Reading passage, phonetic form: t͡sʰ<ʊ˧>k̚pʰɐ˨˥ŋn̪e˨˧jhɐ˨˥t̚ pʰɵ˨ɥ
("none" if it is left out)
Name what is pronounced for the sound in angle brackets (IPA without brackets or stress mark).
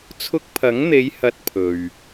ʊ˧